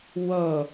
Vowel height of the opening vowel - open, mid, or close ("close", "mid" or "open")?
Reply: mid